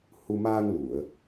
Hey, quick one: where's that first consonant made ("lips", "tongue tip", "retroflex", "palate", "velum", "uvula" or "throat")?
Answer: throat